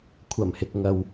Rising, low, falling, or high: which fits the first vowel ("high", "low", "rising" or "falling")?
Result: low